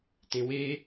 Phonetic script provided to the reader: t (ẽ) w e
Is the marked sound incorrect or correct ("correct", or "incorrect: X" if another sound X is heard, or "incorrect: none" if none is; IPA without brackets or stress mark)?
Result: correct